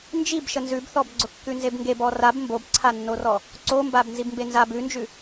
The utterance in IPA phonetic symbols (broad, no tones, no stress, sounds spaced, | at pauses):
n d͡ʒ i b ʃ ə n z ʉ b θ ɔ b ɡ͡ǀ ʊ kː ʉ n z e b ŋ ɡ e b ɔ r a b m b o b ǀʰ a nː o r ɔ | ǀ o m b a b n z i b m b e n z a b ʉ n d͡ʒ ʉ